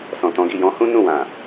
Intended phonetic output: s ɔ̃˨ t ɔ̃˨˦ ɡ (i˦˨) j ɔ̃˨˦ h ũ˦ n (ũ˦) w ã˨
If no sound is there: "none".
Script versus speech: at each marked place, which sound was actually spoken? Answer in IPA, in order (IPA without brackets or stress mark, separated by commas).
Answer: i˦˨, ũ˦˨